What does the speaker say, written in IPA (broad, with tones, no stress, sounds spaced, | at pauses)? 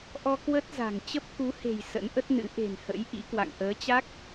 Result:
ʔ ɔ˧ k w ə˦˥ t̚ z a̤˨˩ ŋ t͡ɕ ə˦˥ p̚ k u˨˦ h e̤˨˩ j s ə̰˧˥ n ʔ ə˦˥ t̚ n ɨ̰˧˥ ʔ e̤˨˩ n h ə̰˧˥ j ʔ ḭ˧˥ k w a̰˧˨ ŋ ʔ əː˨˦ t͡ɕ a˦˥ k̚